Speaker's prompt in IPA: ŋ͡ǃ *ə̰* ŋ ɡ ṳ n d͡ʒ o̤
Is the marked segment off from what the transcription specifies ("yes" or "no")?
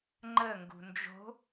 yes